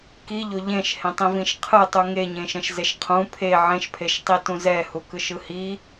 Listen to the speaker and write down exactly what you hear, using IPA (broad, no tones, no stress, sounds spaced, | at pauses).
k i ʎ o ʎ ẽ ʃ h ẽ tˤ ĩ v ĩ ʃ qʰ ɯ tˤ u ŋ e ɲ ẽ ʃ ɛ̃ ʃ z e ʃ qʰ ũ pʰ e ʕ ẽ ʃ pʰ e ʃ tˤ i t ũ z ɛ h u k ɯ ʃ ɯ h i